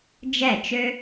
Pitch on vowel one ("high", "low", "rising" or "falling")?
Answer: falling